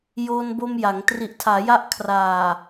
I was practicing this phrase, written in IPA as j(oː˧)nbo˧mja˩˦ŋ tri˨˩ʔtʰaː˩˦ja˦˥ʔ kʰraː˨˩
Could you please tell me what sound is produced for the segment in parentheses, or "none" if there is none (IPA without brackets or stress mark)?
oː˧